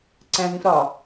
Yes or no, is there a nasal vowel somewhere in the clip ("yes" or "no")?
yes